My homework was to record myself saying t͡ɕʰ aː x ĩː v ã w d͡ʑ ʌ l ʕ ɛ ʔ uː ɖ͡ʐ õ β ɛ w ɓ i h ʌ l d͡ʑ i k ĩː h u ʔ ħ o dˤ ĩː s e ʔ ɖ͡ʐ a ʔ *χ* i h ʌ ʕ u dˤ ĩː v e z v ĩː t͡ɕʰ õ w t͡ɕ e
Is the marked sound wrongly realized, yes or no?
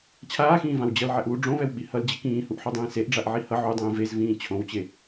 yes